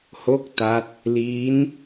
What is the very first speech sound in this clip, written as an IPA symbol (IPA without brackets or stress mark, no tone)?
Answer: h